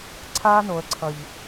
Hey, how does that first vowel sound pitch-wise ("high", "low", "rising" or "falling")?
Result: high